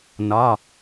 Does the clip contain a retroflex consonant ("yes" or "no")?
no